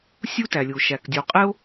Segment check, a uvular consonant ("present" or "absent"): present